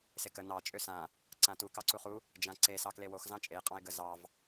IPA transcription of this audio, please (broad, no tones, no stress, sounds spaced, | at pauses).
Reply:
s e k ə n ɑ t͡ʃʼ ø s ã | ǀ ã t u k ɑ ǀ u χ u | d͡ʒ ã ǀ e s ɑ k l e w o x z ɑ̃ t͡ʃʼ e qʼ ɑ̃ ɪ̯ ɡ ə z ɑ v